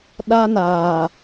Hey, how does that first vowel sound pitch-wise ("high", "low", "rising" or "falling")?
high